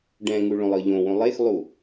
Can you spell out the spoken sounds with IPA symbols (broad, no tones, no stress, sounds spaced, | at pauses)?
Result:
ɖ ɛ̃ ŋ u ɭ õ lˠ ɤ ʎ õ w õ lˠ e x lˠ u